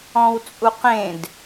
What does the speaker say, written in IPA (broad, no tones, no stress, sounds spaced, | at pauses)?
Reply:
ɔ̃ w t͡sʼ u q ẽ d